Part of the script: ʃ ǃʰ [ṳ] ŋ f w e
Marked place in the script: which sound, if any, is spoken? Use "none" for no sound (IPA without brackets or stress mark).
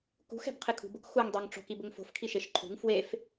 ṳ